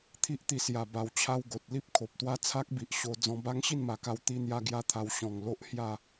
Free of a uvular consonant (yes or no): yes